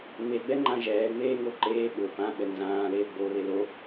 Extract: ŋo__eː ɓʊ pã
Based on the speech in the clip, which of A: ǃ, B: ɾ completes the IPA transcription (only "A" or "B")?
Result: A